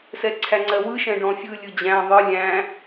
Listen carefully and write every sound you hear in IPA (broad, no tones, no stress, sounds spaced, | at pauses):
s ɛ ǀʰ æ ŋ͡ǀ ɜ w ɯ ʃ ɛ̃ ɖ ɔ̃ fʲ ɯ lʲ ɯ d͡ʑ æ̃ ðˤ ɯ lʲ æ̃